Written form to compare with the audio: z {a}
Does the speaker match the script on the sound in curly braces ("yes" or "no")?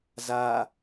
yes